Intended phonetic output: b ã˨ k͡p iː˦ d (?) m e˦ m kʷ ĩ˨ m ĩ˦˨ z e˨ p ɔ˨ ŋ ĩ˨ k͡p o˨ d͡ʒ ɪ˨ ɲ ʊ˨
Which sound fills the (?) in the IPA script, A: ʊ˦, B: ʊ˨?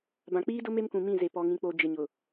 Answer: A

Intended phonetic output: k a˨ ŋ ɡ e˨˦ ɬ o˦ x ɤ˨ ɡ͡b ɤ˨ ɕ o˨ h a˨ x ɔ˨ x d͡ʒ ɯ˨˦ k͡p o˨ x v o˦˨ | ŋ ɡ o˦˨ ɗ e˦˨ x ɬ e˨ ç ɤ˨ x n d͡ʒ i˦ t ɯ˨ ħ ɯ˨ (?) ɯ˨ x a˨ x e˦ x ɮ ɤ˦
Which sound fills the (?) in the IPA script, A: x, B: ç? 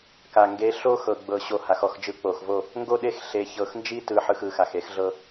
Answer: A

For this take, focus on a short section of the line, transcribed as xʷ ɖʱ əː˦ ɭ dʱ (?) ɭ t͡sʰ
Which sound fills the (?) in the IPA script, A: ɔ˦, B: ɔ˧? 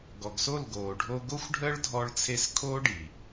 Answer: B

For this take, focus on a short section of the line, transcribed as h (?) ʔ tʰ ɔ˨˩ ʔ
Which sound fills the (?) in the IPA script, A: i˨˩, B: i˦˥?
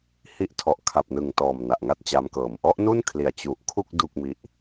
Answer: B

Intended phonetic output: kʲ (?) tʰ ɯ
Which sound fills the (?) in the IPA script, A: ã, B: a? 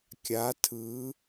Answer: B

